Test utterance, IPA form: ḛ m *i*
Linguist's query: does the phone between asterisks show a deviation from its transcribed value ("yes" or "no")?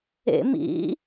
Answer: yes